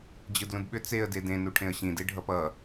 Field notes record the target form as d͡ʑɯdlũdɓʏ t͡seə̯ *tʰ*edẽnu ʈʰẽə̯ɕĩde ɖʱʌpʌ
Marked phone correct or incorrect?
incorrect